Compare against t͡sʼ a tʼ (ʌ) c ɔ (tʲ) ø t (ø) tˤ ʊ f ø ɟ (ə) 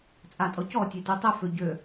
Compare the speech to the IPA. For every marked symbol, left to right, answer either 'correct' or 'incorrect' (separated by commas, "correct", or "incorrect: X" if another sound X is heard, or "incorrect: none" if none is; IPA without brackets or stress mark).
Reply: incorrect: ɔ, correct, incorrect: u, incorrect: ø